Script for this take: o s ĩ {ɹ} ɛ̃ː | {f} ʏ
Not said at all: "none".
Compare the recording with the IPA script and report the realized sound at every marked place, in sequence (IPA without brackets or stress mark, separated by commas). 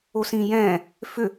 j, f